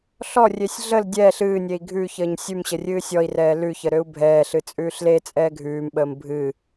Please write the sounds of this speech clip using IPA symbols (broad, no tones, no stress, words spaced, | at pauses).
ɬɔrʲesʲ ɮəl dʲɛːɬ ɨːnʲei̯ ɡʱʉçəːɲ sʲʉmɕə rʲɨːsʲɔi̯rɛː lʉçə ɾøu̯bʱɛːɬɨ t͡sʼʉːɬlet͡sʼɛː ɡʱʉːmɓəːm bʱɨ